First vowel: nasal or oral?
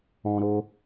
nasal